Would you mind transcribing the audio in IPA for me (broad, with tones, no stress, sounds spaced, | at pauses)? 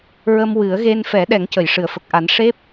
ɹ ə˧ m w ɨ˨˩˦ ə̯ ɣ e˧ n f ɛ˨˩˦ ɗ ɛ˨˩˦ ŋ c ə˨˩˨ j ʂ ɨ˨˩˨ ə̯ f ə˨˩ k̚ ʔ a˨˩˦ n ʂ e˦˥ p̚